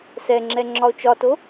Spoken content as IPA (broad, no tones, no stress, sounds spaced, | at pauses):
s ɛ ŋ͡ǁ ɛ ŋ͡ǁ ɒ o̯ t͡ʃ ɒ t o